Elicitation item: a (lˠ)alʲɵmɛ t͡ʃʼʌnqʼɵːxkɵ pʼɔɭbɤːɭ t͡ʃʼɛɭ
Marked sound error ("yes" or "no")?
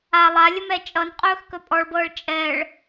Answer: no